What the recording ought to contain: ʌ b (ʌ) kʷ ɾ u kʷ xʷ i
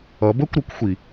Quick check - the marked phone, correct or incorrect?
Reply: incorrect